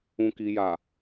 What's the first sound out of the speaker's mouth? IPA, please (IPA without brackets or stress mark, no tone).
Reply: ũ